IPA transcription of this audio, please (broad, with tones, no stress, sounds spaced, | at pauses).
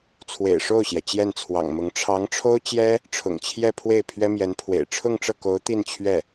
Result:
t͡sʰ w ḛ˨˩ ɪ̯ ʂ o˥˩ ʊ̯ ɕ j ɛ˩ t͡ɕ j ɛ˥˩ n t͡sʰ w ɑ̰˨˩ ŋ m ʊ˧˥ ŋ ʈ͡ʂʰ ɑ˧˥ ŋ ʈ͡ʂʰ o˥ ʊ̯ t͡ɕ j ɛ˥ | ʈ͡ʂʰ ʊ̰˨˩ ŋ t͡ɕʰ j ɛ˥˧ pʰ w e˥˩ ɪ̯ pʰ ɥ ɛ˥ m j ɛ˧˥ n pʰ w ḛ˨˩ ɪ̯ ʈ͡ʂʰ ʊ˥˧ ŋ ʈ͡ʂ ɤ˥˩ k o˧˥ ʊ̯ t̪ i˥˧ n t͡ɕʰ ɥ ɛ˥˩